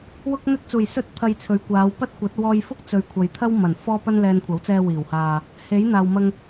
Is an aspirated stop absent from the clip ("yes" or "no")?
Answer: no